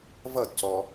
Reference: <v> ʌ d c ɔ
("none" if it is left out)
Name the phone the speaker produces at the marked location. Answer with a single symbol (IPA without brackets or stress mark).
v